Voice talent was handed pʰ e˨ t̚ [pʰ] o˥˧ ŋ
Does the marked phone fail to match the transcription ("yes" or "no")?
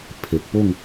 yes